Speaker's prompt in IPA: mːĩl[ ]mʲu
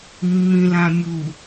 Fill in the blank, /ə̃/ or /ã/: ã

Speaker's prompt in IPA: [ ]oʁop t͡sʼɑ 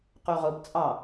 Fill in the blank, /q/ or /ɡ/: q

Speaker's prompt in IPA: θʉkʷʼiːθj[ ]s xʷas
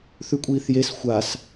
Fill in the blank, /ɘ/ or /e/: e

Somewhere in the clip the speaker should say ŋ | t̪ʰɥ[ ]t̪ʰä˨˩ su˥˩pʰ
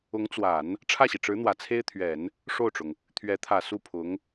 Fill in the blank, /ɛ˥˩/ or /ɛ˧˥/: ɛ˧˥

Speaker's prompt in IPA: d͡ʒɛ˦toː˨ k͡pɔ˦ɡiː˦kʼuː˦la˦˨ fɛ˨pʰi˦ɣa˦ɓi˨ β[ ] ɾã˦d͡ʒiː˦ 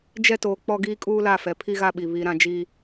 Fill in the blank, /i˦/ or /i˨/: i˦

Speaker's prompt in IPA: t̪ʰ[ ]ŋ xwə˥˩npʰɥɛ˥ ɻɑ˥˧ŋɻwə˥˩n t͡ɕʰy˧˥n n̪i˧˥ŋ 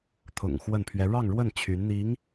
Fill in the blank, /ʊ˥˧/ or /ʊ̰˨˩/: ʊ̰˨˩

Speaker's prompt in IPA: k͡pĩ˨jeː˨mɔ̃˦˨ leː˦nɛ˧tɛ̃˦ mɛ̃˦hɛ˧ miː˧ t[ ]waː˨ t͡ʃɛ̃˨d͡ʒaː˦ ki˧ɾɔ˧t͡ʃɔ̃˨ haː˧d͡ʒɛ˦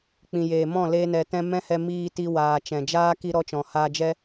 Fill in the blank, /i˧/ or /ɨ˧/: i˧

